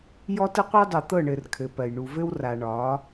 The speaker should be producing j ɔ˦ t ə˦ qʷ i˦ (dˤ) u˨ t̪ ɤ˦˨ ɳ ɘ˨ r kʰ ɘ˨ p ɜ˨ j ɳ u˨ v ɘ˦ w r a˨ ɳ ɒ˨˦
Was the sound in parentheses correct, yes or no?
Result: yes